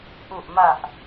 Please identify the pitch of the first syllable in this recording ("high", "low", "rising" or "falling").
low